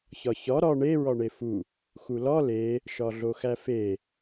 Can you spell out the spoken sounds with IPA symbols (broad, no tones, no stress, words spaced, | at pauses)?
çɒçɒ ɾɒ ɳe ɹɒɳefu | xulɒ le | ʃɒɮoxæfe